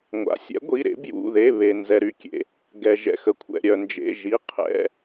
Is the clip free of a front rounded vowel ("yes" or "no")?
no